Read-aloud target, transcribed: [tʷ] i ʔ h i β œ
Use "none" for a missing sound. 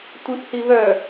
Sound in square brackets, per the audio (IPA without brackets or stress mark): tʷ